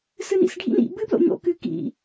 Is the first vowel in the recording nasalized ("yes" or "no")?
no